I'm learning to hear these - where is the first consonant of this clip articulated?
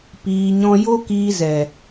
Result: lips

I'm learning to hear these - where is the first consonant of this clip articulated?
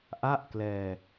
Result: throat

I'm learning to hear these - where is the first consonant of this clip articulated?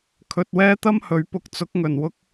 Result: velum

